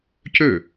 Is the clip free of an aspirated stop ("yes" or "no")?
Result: yes